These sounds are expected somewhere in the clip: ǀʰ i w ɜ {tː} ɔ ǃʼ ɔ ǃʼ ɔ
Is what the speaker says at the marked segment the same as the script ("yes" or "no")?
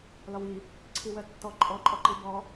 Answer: yes